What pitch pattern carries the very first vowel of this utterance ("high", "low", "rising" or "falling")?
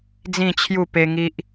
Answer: falling